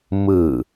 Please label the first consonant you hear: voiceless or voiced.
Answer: voiced